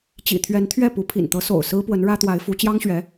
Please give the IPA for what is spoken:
t͡ɕ ḭ˨˩ t̪ʰ ɥ ɛ˧˥ n t̪ʰ ɥ ɛ˥˩ p u˧˥ pʰ ḭ˨˩ n t̪ ɤ˧˥ s o̰˨˩ ʊ̯ s ɹ̩˥ p w ə˧˥ n ɻ ä˥ t̪ w a˧˥ ɪ̯ f u˧˥ t͡ɕ j ɑ˥ ŋ ɕ ɥ ɛ˧˥

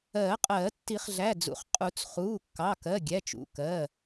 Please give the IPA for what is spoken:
ɜː˨˩˦ qʼ ɜː˨˩˦ tː i˨˩˦ χ ɮ æ˩˧˩ d͡z ṵ˩˧˩ χ qʼ u˨˩˦ t͡s χ uː˩˧˩ kː ɑ˩˧˩ k ɜ˩˧˩ ɡʲ æ˩˧˩ t͡ʃ ṵ˩˧˩ k ɜ˩˧˩

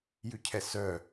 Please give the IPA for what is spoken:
j ʉ cʰ ɛ s œ

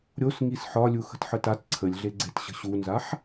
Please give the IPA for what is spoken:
ɾʲ o s ŋ i s ħ ɒ lʲ u x ə̤ t ħ ə t a t ǀʰ ə lʲ ɮ e ɡ͡ǀ e t ɕ ə̤ ɕ u n z a ħ

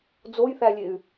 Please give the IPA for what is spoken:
d͡z o j θ æ lʲ e y̯

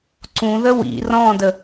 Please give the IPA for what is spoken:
ǀ ũ ð ə w ḭ r ɔ̃ d ə

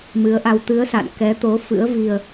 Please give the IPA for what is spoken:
m ɨ˨˦ ə̯ ʔ a˧ w t̪ ɨ˨˦ ə̯ s a̰˧˨ n k ɛ˨˦ t̪ o˨˦ f ɨ̰˧˥ ə̯ v i˧ ə̯

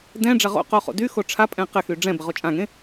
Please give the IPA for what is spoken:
d ɛ̃ ɖ͡ʐ ɐ ʁ o̰ q o χ o̰ d y x o ʈ͡ʂʰ a pʼ ɛ̃ q ɪ x y ɖ͡ʐ ɛ̃ b ɪ ʁ o t͡ʃʼ ã ŋ ẽ

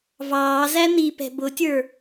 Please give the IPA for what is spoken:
v ɑː z æ n̪ i p ɛ̤ b ʊ tʲ ə˞

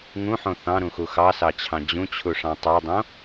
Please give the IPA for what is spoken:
ŋ ũ ħ õ θ ɑ̃ ɾ ũ x u x ɑ s ɑ t͡ɕʰ ɑ̃ d͡ʑ ũ t͡ɕʰ u ʂ ɑ̃ tˤ a dˤ õ

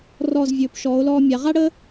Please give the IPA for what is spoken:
r ɔ˧˩ z vʲ ɵː˩˧ p ʃ ɔː˩˧ o̯ l ɔː˧ mʲ a˩˧ ʁ a˥ ɽ əː˥

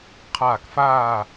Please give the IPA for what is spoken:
qʰ aː˧˩ k f aː˥˨

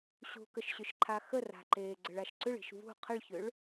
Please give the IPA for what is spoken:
ɕ ṳ k ə ʃ ɕ ʏ ʃ ǃʰ a x ə r a̤ ǃ eː ɡ͡ǀ ə ɭ a ʃ ǀ ʏ ɭ i̤ ʃ v ṳ qʰ ə ɭ ç ʏ ɭ

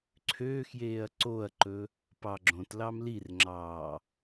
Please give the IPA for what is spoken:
ǀʰ øː x j eː ɐ̯ ǀ o ɐ̯ ǃ ɵ | p ɑ ɡ͡ǁ õ t l ɑ m l i r ŋ͡ǁ ɑː

